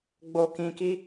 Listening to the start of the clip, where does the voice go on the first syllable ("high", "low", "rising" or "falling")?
low